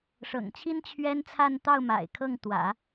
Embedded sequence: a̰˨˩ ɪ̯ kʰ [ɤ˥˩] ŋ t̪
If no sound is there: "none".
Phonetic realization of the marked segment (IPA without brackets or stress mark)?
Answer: ɤ˥˩